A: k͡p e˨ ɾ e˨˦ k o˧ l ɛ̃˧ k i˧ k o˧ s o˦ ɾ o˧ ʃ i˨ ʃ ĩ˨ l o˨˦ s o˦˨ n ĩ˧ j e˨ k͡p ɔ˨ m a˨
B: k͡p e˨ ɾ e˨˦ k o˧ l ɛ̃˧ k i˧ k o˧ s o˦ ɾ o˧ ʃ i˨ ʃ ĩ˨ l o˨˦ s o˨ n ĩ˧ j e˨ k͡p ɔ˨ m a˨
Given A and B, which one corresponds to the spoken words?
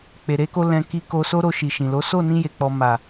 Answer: A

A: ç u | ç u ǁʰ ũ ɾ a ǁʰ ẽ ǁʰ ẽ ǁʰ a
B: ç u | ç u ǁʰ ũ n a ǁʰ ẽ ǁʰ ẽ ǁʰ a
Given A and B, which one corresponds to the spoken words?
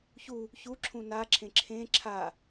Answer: B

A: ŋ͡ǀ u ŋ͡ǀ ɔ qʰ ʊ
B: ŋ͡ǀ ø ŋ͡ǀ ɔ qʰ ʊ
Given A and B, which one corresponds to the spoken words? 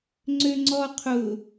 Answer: B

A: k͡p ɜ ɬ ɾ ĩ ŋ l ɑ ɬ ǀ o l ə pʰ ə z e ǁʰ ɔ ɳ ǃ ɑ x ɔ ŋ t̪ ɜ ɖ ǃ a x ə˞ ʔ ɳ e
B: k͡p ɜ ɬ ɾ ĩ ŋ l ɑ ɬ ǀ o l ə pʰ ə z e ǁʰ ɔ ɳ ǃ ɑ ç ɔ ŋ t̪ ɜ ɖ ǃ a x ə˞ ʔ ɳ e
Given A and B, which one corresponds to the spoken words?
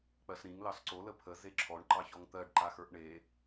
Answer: B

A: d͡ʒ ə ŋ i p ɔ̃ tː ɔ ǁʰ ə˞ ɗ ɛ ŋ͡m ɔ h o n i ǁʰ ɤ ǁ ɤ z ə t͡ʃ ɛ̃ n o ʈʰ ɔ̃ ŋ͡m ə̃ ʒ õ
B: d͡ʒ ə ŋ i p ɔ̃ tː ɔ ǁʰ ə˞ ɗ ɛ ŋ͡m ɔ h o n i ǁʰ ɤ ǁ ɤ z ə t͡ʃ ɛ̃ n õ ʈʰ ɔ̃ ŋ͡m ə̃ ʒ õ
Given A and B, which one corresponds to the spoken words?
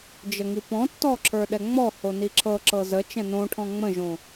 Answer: B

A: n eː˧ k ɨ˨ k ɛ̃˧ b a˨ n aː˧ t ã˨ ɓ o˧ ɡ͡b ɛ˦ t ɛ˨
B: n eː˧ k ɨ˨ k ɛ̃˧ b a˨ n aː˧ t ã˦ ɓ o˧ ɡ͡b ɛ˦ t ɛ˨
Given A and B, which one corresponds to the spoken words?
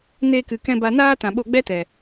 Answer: A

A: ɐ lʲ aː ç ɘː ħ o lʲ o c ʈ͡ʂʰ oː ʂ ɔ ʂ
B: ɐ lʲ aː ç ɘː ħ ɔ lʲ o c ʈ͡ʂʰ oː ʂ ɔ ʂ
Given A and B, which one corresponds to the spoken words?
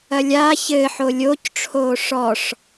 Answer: A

